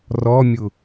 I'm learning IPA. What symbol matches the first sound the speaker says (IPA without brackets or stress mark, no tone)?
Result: r